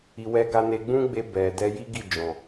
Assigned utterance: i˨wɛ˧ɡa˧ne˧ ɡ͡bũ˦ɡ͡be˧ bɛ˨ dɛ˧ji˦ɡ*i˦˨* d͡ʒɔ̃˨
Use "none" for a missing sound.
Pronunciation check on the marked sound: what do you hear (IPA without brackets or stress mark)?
i˦˨